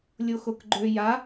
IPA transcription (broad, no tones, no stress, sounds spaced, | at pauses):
lʲ o x o k ɡ͡ǃ ø j a